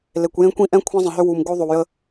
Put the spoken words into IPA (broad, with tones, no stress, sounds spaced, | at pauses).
l e˨ kʷ j ẽ˦ kʷ ĩ˦ ʔ ɛ̃˦ kʷʰ ɛ̃˦ zˤ ə̃˨ ɦ ʏ˦ w u˨ m ɡ o˦ ðˤ o˨ w j ə˦